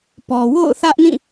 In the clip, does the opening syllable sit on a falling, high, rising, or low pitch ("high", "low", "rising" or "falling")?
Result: low